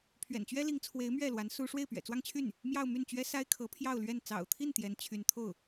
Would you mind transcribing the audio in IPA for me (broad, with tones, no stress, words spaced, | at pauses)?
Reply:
pʰɥɛ̰˨˩nt͡ɕɥɛ˥li˧˥ŋt͡sʰwe˧˥ɪ̯ mɥɛ˥˩lwa˧˥n su˥ ʂwe˥˩ɪ̯pɥɛ̰˨˩t͡swɑ˥˧ŋt͡ɕʰy˥˩n | mjɑ˥˧ʊ̯my˥˩nt͡ɕɥɛ˥ sa˥ɪ̯kʰɤ˧˥pʰjɑ˥˧ʊ̯lɥɛ˥˩n t͡sɑ̰˨˩ʊ̯t̪ʰi˥˩n t̪jɛ˧˥nt͡ɕʰy˧˥n t̪ʰo˥˩ʊ̯